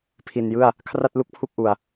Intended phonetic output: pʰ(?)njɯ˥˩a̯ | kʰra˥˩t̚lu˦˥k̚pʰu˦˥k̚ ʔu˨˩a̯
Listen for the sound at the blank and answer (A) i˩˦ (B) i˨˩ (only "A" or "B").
B